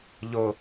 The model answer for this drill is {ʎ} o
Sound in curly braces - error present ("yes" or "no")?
no